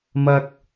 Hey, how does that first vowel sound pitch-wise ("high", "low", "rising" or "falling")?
low